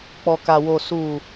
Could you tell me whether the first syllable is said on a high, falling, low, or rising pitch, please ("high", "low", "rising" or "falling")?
low